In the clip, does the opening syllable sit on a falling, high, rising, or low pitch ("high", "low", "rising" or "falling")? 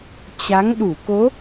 rising